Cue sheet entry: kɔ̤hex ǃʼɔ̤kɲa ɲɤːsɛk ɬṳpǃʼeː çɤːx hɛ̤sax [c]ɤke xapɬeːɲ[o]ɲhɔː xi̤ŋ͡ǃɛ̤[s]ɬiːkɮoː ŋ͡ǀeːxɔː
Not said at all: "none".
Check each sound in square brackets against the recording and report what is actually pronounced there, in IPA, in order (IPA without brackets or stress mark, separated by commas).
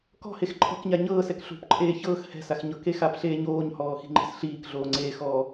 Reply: ɲ, oː, s